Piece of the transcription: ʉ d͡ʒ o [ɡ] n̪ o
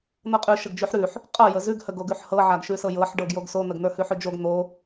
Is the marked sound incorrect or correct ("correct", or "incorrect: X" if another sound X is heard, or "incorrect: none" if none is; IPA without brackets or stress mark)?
correct